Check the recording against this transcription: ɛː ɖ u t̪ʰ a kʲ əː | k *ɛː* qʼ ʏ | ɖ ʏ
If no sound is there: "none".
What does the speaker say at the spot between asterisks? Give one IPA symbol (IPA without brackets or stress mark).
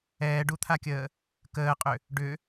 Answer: əː